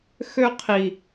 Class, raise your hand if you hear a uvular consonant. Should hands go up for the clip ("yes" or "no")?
yes